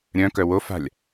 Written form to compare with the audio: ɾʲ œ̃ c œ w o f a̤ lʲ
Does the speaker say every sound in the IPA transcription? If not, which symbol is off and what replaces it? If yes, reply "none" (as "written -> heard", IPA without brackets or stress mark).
c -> k